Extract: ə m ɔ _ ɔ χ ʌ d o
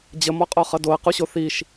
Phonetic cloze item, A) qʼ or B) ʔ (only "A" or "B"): A